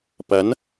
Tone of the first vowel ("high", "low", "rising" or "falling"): rising